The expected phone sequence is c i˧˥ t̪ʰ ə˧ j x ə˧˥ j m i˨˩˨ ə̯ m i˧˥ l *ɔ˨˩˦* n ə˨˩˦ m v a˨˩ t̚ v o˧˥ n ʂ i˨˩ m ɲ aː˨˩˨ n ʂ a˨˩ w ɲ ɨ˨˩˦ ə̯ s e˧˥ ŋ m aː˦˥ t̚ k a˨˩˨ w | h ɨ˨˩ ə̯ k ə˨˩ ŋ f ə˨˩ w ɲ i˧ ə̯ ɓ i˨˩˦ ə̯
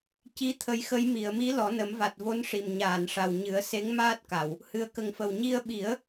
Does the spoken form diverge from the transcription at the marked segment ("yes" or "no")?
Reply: no